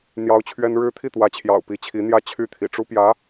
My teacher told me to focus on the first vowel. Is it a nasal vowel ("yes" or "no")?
no